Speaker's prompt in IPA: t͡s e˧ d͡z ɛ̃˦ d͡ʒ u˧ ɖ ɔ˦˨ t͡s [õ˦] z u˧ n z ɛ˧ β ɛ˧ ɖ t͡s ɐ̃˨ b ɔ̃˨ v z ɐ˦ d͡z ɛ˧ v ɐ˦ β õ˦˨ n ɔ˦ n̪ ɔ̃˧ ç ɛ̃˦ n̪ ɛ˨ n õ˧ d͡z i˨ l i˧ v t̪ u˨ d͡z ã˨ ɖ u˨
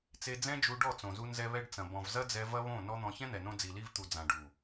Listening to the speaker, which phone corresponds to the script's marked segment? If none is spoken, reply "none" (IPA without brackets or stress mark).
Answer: õ˨